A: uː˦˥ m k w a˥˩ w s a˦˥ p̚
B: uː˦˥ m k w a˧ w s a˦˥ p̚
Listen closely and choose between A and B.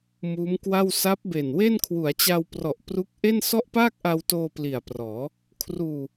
A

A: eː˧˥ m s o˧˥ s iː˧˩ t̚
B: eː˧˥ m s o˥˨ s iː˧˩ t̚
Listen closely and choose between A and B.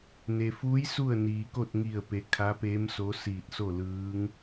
A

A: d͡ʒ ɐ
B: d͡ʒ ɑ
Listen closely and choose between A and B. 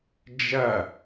A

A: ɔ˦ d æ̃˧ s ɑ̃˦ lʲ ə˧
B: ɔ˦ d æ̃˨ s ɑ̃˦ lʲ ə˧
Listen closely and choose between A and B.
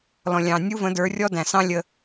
B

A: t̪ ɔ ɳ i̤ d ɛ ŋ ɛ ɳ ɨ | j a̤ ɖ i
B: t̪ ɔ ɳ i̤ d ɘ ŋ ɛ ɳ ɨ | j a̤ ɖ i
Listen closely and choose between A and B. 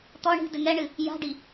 B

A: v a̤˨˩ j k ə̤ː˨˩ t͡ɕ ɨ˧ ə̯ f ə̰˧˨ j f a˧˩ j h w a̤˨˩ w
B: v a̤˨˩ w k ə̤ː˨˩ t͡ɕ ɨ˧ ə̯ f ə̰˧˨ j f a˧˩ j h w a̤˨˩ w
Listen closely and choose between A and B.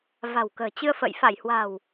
B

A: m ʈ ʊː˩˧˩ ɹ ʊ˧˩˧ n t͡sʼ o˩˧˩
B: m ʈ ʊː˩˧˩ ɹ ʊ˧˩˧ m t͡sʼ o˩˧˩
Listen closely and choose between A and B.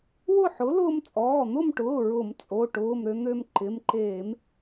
B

